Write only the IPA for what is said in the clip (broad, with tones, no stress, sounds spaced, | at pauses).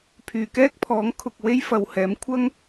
pʰ yː˨ k ɛː˥ k̚ pʰ ɔː˨˥ ŋ kʰ ʊ˨ k̚ w e˥ j f ɐ˨ w h ɛː˨˥ m kʷʰ ɐ˥ ŋ